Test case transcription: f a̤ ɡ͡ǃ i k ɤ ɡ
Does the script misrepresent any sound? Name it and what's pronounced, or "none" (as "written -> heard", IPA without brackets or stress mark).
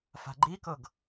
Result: none